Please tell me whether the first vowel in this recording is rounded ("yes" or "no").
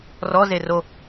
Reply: yes